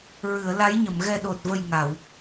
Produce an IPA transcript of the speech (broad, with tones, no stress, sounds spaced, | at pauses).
ɹ ɨ˨˩˨ ə̯ l a˧˥ j ɲ ə˨˩˨ m ɣ ɛ˨˩ ɗ o˨˩ t̚ v ə˨˩ j ŋ a˨˩˨ w